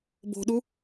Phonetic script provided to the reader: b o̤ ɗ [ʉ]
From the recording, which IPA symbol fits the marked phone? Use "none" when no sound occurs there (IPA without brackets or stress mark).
u